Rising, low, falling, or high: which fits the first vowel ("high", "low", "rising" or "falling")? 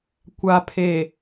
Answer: low